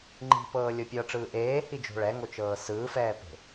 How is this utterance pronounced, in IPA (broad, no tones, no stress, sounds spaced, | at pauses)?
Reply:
ŋ͡ǃ i̤ p ɤː lʲ o pʲ ɤ ʈ͡ʂ ɯː ʔ eː h i d͡ʒ o̤ ɭ ɛ ŋ o t͡ʃ ɤː s ɯː f ɛː p e̤